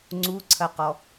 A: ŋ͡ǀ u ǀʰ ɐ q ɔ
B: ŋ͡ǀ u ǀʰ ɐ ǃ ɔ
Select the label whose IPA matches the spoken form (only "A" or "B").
A